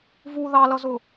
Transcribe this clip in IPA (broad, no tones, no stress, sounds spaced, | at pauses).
v u ð ɑ l ʌ z ʊ